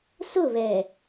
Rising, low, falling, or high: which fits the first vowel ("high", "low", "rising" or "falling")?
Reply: falling